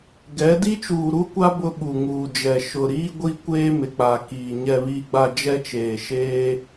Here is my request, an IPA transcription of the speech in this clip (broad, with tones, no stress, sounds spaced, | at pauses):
ɡ ɛ˨˦ d i˦ t͡ʃ uː˨ ɾ u˦ kʷ a˦ b ʊ˦ ɓ u˨ ŋ uː˨ d͡ʒ ɛ˨ ʃ ʊ˨ ɾ iː˦ ɡʷ i˦ kʷ eː˦ m ɪ˨ k͡p a˨ k iː˨ ɲ ɛ˨ β iː˨ ɡ͡b a˨ d͡ʒ ɛ˦ t͡ʃ eː˨ ʃ eː˦